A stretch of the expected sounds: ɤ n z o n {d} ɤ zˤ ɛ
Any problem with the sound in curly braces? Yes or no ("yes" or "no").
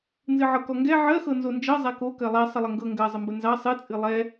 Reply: yes